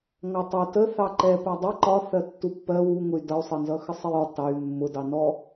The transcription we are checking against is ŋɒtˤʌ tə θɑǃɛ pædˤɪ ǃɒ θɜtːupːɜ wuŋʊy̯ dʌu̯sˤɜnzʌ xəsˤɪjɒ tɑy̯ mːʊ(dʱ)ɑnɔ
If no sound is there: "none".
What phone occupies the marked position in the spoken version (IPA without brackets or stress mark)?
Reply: d